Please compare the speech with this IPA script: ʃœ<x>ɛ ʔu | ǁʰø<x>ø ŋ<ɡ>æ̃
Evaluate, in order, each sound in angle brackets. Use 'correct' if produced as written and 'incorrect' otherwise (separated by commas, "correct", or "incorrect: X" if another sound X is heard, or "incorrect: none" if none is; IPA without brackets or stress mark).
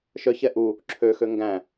incorrect: ç, correct, correct